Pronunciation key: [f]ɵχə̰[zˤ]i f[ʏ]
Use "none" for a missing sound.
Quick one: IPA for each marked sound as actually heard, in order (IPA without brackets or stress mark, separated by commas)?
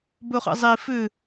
b, zˤ, ʏ